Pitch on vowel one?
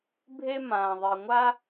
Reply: high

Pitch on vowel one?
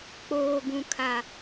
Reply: low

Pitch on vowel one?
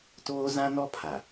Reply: high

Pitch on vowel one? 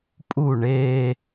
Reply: falling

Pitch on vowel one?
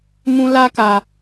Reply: high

